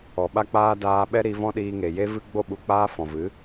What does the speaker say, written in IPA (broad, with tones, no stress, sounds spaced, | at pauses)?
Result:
ɔ˨ ɓ a˦ k͡p aː˦ d aː˧ ɓ ɛ˦ ɾ i˧ v ɔ̃˦ ɗ iː˧ ŋ e˨ j e˦ v ɨ˦ ɡ͡b o˦˨ ɓ u˨ k͡p aː˦ f ɔ̃˨ v ɨ˨˦